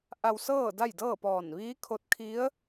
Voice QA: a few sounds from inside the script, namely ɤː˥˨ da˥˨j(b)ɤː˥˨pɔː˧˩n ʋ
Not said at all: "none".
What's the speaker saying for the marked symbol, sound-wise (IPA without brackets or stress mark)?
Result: d